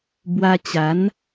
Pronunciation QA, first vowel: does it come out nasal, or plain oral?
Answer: oral